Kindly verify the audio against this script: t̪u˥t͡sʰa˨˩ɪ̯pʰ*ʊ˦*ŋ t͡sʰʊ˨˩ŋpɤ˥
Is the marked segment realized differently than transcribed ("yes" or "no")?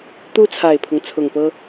no